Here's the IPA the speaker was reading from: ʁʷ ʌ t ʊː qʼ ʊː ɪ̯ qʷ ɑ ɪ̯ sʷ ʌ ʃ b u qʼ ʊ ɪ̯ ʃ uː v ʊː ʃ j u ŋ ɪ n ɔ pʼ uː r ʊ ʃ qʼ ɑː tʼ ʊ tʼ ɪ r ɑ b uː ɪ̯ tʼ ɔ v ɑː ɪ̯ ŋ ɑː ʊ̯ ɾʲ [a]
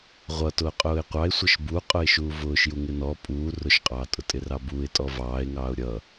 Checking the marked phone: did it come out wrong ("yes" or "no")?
yes